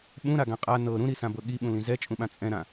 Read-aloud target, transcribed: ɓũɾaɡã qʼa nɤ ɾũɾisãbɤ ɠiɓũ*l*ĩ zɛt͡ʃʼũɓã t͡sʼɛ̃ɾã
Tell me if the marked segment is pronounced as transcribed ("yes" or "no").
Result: yes